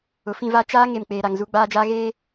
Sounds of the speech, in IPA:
ʊ˨ f ĩ˦˨ v a˦ t͡ʃ aː˦ ŋ e˨ m k͡p eː˨ ɾ a˨ ŋ z u˦ ɡ͡b aː˦ d͡ʒ aː˦ ɣ eː˦

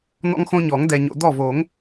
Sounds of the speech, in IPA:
n̪ ɔ̰˦ ŋ x õ˦ ɲ ɔ˨˩˦ ŋ d ɛ˨ ɲ o̰˨ d̪ ɔ˥˩ v o˨˩˦ ŋ

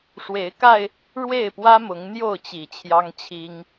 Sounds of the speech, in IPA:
ʂ w e˨˦ ɪ̯ k a˧ ɪ̯ | ɻ w e˥˨ ɪ̯ p w ä˦ m ʊ˨˦ ŋ n̪ j o˥˨ ʊ̯ t͡ɕ i˨˩ t͡ɕʰ j ɑ˦ ŋ t͡ɕʰ i˦ ŋ

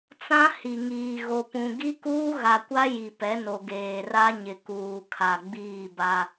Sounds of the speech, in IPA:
t͡s ã˦ h i˨ ŋ iː˨ ɣ o˨ p ũ˨ ɡ i˦ k uː˦ ɣ a˨ kʷ a˦ j i˨ p ɛ˨˦ n o˨ ɡ eː˨ r a˦ ɲ ɪ˨ k uː˨ kʰ a˨ ɡ͡b iː˦˨ b a˦

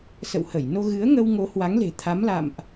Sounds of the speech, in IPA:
s ə̰˧˨ w h ə˧˩ j n o˧ ɣ ɨ˨˦ ə̯ ŋ ə˧ w ŋ o˨˦ h w a˨˦ ŋ l e̤˨˩ t̪ʰ a˨˦ m l a̰˧˨ m ʔ

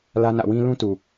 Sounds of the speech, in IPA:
l ä˦ n ä̰˦˨ w ĩ˦ l ũ˦ t u˨

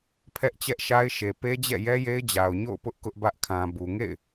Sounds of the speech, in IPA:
pʰ ɛ˦ ʔ t͡ɕ ɛ˦ ʔ ʃ a˦ ɪ̯ ʃ e˨ p e˦ d͡ʑ ɛ̰˦˨ j ɛ˦ j e˦ ɪ̯ d͡ʑ a˨ ʊ̯ ɲ o̰˦˨ ʊ̯ p ʊ˦ ʔ k ʊ˦ ʔ b ä˦ ʔ kʰ ã˨ b u˨ ŋ ḛ˦˨ ɪ̯

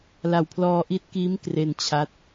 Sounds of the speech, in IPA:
l a˨˩ w pʰ l ɔː˧ ʔ i˦˥ t̚ k iː˦˥ m k r e˧ n t͡ɕʰ a˦˥ t̚

